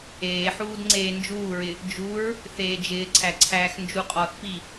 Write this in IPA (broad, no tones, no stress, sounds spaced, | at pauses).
eː ħ uː d ŋ͡ǀ eː n d͡ʒ uː ɹ ɪ | d͡ʒ u ɹ | θ eː d͡ʒ ɪː ǀʰ æ ǀʰ æː x n d͡ʒ u qʼ ɔ θ p i